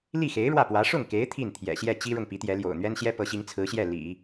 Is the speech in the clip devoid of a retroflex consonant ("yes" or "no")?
no